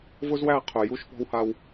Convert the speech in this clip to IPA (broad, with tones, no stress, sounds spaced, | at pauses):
v ʊ˦ z w æ˦˨ qʰ ʊ˨ j u˦ ʃ p ɔ̤˦ w h a˦ w